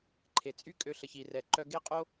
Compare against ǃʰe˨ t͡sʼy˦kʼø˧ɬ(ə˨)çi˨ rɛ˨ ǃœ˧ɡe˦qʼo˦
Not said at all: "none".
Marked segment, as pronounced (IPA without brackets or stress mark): ə˨